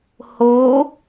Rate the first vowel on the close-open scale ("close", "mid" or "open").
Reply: mid